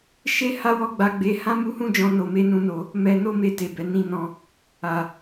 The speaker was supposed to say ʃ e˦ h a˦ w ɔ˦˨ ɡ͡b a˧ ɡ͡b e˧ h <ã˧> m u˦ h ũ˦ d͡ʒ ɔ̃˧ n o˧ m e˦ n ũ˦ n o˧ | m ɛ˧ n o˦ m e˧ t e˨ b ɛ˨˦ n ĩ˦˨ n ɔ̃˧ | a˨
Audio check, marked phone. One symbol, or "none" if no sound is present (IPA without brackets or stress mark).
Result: ã˦